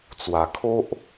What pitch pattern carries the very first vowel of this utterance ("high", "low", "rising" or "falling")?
low